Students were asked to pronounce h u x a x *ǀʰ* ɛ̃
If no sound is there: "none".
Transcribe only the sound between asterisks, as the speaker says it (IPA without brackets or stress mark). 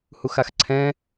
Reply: ǀʰ